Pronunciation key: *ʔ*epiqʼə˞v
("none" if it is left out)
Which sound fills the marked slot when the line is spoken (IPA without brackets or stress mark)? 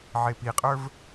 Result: ʕ